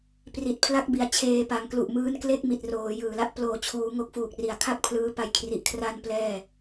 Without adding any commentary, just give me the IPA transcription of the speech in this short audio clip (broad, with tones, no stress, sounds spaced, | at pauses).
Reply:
p r i˨˩ t̚ pʰ l a˦˥ k̚ b i˩˦ a̯ t͡ɕʰ eː˧ p a˩˦ ŋ k l u˨˩ ʔ m ɯː˦˥ n k l e˥˩ k̚ m i˨˩ t̚ r oː˩˦ j ɯː˨˩ l a˥˩ ʔ p l oː˨˩ t͡ɕʰ uː˩˦ ŋ o˦˥ k̚ f uː˨˩ k̚ r i˨˩ a̯ kʰ a˥˩ k̚ pʰ l ɯː˦˥ p a˦˥ j kʰ r i˨˩ ʔ kʰ r a˥˩ n p l ɛː˥˩